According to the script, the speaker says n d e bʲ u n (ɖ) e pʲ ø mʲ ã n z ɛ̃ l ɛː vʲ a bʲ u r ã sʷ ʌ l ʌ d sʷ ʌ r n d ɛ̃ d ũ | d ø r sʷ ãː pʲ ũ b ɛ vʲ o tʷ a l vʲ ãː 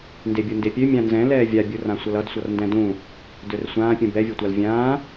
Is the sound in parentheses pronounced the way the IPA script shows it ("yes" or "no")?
no